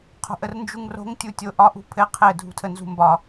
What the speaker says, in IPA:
qʰ o̤ ʔ ə r n d͡ʒ u ŋ r o̤ ŋ tʲ u tʲ o ʔ ɒ ʔ ṳ pʰ ɘ qʰ ɘ dʱ ṳ tʰ ə n z ṳ m b ɒ

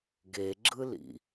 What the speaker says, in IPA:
ɡ e ɡ͡ǁ ɯ l ḭ

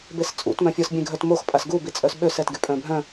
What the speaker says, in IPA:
b e s t͡sʼ ṵ t m œ̃ fʲ ɔ s bʲ ẽ ɡʱ œ t m o x pʼ a s ɡ u b i t͡sʼ œ s ɓ ø s ɛ t ɡ y pʼ œ̃ bʱ œ̃

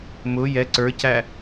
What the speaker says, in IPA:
m ʊ j ɛ ǀ ə˞ c æ

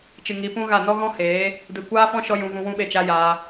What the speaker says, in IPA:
t͡ʃ ɨ˨ ŋ i˨˦ p ũ˦ ɣ a˦˨ n ɔ˦ ɣ ɔ̃˦ h eː˨˦ | d ɨ˨ kʷ aː˦ f ɔ̃˦ ʃ ɔ˦ j ũ˧ v ũ˧ w ũ˦ ɓ e˦˨ t͡ʃ a˦ j aː˧

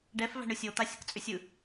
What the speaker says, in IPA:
ɖ ɛ f v æ̤ ɳ ɯ sʲ o t̪ a sʲ ə k t͡sʼ ʏ sʲ ɯ

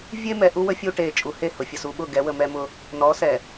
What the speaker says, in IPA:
vʲ e˦ m ɛ˨ ʔ u˦ w ə˦ fʲ u˦ ʈ e˨ t͡ʃʼ u˨ h e˦˨ h ʊ˨ fʲ ə˨ s u˨ ɓ ʊ˦˨ ɡ ɛ˨˦ w ə˨ m ɛ˦ m ʊ˦ | n ɔ˨˦ s ɛ˨

